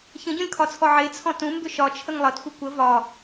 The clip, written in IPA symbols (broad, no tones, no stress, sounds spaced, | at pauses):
ç ə̃ ɟ õ lʲ kʰ ɒ t͡sʰ ɔ ʕ e t͡sʰ ɔ̃ t ũ m b ʏ ʃ ɒ t͡ʃʰ ə ŋ lˠ ʌ t xʷ ɨ kʷ ə v ɒ